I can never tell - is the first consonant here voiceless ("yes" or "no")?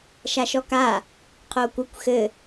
yes